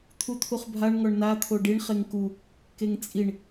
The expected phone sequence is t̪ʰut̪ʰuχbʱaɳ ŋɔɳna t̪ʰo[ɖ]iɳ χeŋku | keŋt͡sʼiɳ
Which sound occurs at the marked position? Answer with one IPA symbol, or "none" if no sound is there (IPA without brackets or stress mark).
ɖ